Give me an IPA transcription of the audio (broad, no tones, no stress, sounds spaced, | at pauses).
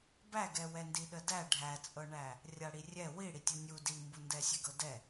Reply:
b æ ɡ ɛ w ɛ n d i ɗ ə d æ ɖʱ æ t͡sʼ ɤ ɳ æ | rʲ a ɽ i rʲ ɛ w i ɽ i tʲ u nʲ u d i m b u n d ɛ sʲ ɛ ɡ ɤ d ɛ